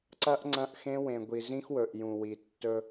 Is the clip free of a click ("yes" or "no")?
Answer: no